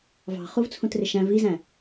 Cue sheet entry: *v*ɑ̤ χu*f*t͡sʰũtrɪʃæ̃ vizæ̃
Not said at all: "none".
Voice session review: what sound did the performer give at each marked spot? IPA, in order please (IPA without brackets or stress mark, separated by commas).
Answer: v, v